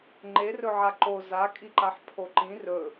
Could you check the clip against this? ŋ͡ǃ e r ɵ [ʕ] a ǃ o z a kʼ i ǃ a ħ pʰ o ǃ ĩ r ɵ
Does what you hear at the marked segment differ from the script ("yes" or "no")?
no